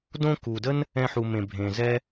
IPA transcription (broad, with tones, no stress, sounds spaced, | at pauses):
d õ˦ k u˨ d ə˦ n | ɛ̃˧ ħ u˨ m ẽ˨ bʱ ẽ˨ z ɛ˦